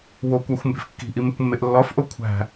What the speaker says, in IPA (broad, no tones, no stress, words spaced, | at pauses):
wokʷæxʷmbe̤f kːi̤ʔimekʷmːeʔ lːɒfʔo kʷʰæ̤